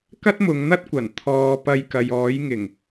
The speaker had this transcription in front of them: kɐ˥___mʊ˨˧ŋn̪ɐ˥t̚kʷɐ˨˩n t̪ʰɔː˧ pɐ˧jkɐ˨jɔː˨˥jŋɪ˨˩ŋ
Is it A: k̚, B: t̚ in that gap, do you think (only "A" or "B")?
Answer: B